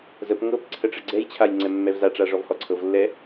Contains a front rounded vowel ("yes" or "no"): no